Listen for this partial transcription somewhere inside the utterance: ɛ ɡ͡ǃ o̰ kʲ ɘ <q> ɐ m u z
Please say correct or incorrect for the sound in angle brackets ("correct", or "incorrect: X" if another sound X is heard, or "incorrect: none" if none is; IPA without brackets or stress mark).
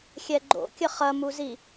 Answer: incorrect: χ